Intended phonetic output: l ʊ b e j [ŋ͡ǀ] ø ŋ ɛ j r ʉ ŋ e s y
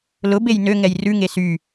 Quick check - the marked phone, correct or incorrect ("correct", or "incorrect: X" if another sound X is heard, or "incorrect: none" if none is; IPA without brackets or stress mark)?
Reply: incorrect: n